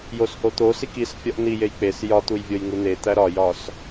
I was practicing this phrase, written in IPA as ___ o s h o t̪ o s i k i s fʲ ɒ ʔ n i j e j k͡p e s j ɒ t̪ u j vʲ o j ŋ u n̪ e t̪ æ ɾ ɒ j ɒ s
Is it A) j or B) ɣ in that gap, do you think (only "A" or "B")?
A